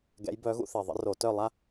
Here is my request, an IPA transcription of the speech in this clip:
ɡɛ̰˧˥jbœ˧˥ɣṵ˥ θe˨˩ðˤə̰˧˥ ro˧˩˧tœ˦˨ lˠa˥

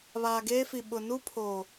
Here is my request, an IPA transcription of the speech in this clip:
βaː˨ɡeː˦fi˨ ɓʊ˨nu˦pʰoː˨

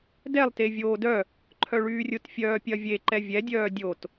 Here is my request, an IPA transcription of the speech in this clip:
dɛlˠ tevʲoːdœ | ǃʰœɭyːrʲʊt fʲœːpʲɐvʲe ǃɛvʲɛ dʲœːdʲot

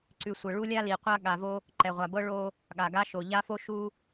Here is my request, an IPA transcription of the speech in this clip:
ǀʉ˨sʷə˨ ɭu˦lʲa˦li˨qʷa˦ ɠa˨ vo˦ | ǃɛ˨ʁʷa˨bɤ˦ ɭo˦ | ɠa˨ɡa˦ ʃo˨ʎa˦fo˦ ʃu˦

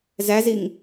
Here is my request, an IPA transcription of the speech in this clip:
zæziŋ

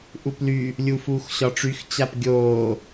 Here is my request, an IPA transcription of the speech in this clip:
ʔuply | lʲuːfuːxɕɒʈ͡ʂyx t͡ɕapɡʲoː

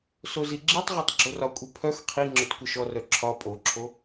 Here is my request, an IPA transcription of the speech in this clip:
soziɡ͡ǁitˤʁɔtˤ ɡ͡ǁorɒkʷʼi pʰœx qʰi ŋ͡ǁœtkʷəʃɔrœ ǁʰɒ pʼoǁʰo

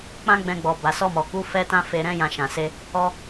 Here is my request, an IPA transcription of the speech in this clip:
k͡pã˦ɡ͡bɛ̃˧ɡ͡bɔ˨ ba˨sɔ˧mɔ˨ku˨˦ fɛ˦ tã˦fe˧ɾɛ̃˦ jã˧ʃã˨ se˧ | ɔ˧

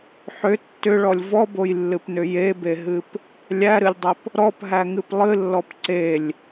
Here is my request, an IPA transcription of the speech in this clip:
ħʏ tːʏɭɔlʲ vɔbojlːɨpnʏ jebeɦɨp | lʲæɾɨlʲdˤʏp | ɾɔpɦæŋɨp lˠɨlːɔp ǀelʲ

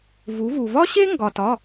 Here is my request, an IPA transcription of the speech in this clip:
vu˩˧vu˩vɒ˥ɕe˥ ŋɡɒ˩tɒ˩˧˩

